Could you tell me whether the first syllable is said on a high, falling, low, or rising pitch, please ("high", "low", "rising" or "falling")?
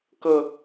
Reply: falling